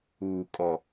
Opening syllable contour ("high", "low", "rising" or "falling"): low